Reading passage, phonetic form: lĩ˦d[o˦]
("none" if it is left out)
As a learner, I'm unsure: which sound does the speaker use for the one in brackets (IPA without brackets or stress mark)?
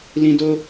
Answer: o˦